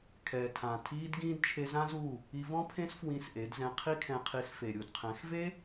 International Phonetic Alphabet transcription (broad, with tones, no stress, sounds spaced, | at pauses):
kʰ ɛː˨ tʰ ã˨ tʰ iː˧ d ɡ ĩː˧ d t͡ʃʰ e˧ z ã˦ z u˦˨ | i˧ v ɔ̃˦ pʰ ẽ˦ s f w ĩ˧ s ʔ e˨˦ d z ɛ̃˧ qʰ i˦ kʰ ɛ̃˧ qʰ i˧ s f e˨ ɾʲ u˨ d qʰ ɛ̃˨˦ x v e˦